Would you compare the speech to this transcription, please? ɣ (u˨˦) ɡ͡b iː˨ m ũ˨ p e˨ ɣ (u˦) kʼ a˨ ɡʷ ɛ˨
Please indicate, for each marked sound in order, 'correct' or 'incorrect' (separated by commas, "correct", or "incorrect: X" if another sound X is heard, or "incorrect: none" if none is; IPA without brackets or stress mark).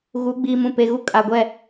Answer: correct, correct